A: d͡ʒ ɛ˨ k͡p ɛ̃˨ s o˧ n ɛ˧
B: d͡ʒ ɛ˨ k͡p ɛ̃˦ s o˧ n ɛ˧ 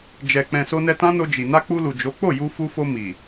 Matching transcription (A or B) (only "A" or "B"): A